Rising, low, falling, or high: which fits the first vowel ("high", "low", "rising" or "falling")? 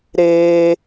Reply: high